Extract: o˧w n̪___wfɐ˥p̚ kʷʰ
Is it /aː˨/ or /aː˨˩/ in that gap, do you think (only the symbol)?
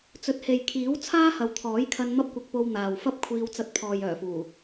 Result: aː˨